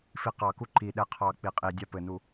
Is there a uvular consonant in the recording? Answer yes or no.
yes